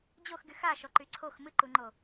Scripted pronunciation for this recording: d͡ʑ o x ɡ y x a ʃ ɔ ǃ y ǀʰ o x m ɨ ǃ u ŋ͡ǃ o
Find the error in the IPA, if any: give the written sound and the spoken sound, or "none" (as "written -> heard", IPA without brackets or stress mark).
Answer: none